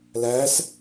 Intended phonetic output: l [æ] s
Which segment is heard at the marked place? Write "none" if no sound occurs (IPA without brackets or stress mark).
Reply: æ